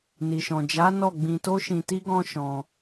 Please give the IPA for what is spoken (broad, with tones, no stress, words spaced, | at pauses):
ni˨ʃɔ̃˨d͡ʒa˨˦ nɔ˦˨ɡ͡bĩ˧ to˦ʃĩ˧ti˦ɡɔ̃˦ ʃɔ̃˧